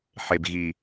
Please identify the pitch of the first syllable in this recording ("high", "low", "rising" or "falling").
low